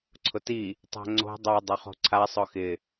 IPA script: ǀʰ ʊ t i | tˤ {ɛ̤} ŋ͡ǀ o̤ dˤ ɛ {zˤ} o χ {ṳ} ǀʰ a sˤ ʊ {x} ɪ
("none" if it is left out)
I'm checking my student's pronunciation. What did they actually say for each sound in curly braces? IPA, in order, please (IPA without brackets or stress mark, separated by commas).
ɛ̤, dˤ, o̤, x